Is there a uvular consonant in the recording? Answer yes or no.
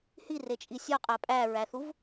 yes